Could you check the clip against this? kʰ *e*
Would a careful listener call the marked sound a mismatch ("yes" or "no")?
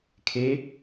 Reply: no